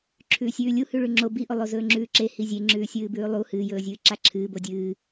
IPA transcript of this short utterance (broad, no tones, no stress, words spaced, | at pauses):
ǁʰʉːsʲʉːlʲu hʉɭʉŋ͡ǁo biʔo lˠozɵːŋ͡ǁʉːǁe hizʲe ŋ͡ǁʉːsʲɨːbʉːlˠu hɨːjɵːzʲɨː ǁaǁʰɨː bodʲɨː